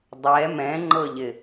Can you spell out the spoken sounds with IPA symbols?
dˤɛ mɛ̃ŋ͡ǃɤʎɪ

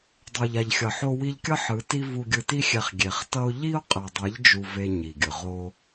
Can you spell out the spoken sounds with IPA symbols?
dˤo˨ʎ a˨ʎxʲʌ˨ ħo˧wi˧ʎkʲʌ˦ ħɯ˨˦ti˦ vu˧ɡʲɯ˧ti˦xʲɛ˧χ ɡʲe˨χtʌ˦ʊ̯ ʎi˦ʊ̯ qʼɛ˨dˤe˨˦ʎ d͡ʒu˧ve˧ ɲi˨ɡʲɯ˨ ʁo˧

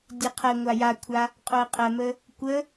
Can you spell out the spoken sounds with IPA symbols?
dʲeqʰɛŋʷa jakʷʰa | qʼoə̯qʼɜmə | kʷə

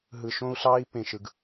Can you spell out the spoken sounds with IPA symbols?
ɦɯ˨ʃõ˦u̯ɬɑː˦i̯ pẽ˨ʃɯ˨ɡ

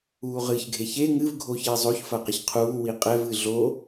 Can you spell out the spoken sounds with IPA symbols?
uːʁɨçɡʱe çe ŋɨv ɡʱoçizˤoçfɐ qiçqʰuːwi qʼɛvɨ ɮo

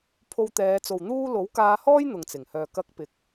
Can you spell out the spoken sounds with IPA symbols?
pʰo˧wt̪ɛː˨˧t͡so˨w n̪uː˥ lo˨˥wkaː˧hɔː˥j n̪ʊ˨ŋt͡sɪ˨˩ŋhœː˨ kɐ˧k̚pɪ˨˥k̚

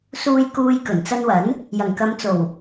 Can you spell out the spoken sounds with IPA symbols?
suː˧j kuː˧j kɵ˨˩nt͡sɐ˧nwɐ˨˥n | jɐ˨˩ŋkɐ˨˧mt͡so˨˩w

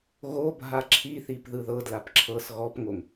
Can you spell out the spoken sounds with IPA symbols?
ɣobʱa ǁʰiθip ðɯðɤdlap ǁʰɤs ɣɔpŋoŋ

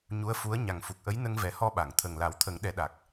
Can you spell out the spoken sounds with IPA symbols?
ɲu˧˥ə̯fu˧˥ə̯ ɲa˨˩ŋfu˨˩k̚ʔə˧˥j nə˧ŋvɛ˨˩˦hɔ˧ɓa˨˩˨ŋ t̪ʰə˨˩ŋla˨˩˦wt̪ʰə˨˩˦ŋ ɗɛ˨˩˦ɗa˨˩k̚

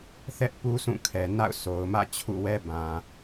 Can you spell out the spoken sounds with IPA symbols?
θɛ˦ʔpu˦ sũ˦˨ kʰɛ˨na̰˦˨ʊ̯sʰo˨ʊ̯mä̰˦˨ t͡ɕʰṵ˦˨wɛ˦ bã˨

